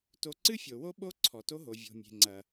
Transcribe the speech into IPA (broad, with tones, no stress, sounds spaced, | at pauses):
t o˧ ǀ ɨ˦ fʲ o˨ w o˦ ɓ o˦ ǀʰ ɔ˨ t o˦ ɦ o˨ vʲ o̤˨ mʲ e̤˨ ŋ͡ǀ ɐ˨